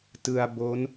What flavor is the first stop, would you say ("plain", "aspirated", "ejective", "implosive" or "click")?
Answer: plain